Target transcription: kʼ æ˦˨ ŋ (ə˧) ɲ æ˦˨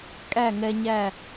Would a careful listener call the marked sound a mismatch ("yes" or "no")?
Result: yes